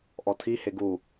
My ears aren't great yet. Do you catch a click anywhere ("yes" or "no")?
no